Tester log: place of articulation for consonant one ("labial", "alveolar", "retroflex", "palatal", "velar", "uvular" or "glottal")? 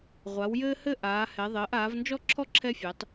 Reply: uvular